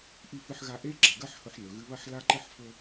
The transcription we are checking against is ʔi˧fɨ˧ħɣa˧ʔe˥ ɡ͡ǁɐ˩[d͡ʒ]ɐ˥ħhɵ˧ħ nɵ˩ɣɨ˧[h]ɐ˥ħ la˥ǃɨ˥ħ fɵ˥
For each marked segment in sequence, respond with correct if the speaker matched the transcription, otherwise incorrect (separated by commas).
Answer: incorrect, incorrect